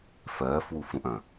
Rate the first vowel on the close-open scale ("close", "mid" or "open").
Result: mid